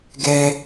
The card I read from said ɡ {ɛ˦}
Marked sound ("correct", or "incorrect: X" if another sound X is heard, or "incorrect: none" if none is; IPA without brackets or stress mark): correct